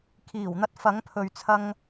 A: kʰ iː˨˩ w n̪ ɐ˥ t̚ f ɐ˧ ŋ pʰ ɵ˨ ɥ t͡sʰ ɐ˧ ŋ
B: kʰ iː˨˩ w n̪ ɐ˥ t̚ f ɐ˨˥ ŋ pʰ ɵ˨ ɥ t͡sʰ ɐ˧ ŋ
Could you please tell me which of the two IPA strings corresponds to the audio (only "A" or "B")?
B